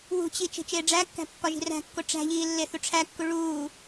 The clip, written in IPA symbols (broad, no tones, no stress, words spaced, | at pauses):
wṳt͡ɕi t͡ʃe̤t͡ʃeːɖ͡ʐækːæ̤ pːɒʒi̤ræ̤kːo ʈ͡ʂæ̤ʎiː lːeθuʈ͡ʂʰækːu ɭuː